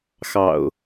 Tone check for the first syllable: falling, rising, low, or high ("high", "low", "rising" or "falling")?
low